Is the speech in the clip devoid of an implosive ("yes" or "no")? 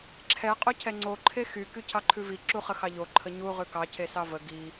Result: yes